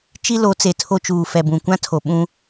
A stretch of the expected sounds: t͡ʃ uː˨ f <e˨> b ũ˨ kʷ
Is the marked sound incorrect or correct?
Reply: incorrect